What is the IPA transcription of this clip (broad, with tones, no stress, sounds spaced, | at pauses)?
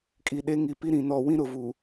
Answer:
kʼ i˨ ɗ e˦ ŋ i˨ p i˦ ɾ ĩ˨ n ɔ˨ w ĩ˦ ɾ ʊ˨ v u˨